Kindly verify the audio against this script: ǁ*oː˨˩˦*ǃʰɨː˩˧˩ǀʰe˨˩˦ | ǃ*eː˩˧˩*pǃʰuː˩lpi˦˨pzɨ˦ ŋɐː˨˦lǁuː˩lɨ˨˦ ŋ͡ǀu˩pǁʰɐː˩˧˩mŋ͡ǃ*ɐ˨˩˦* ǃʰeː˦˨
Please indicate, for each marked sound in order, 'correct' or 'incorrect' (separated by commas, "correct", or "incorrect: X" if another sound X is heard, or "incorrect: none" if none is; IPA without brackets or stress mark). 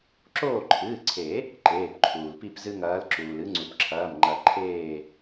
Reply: incorrect: oː˦˨, correct, correct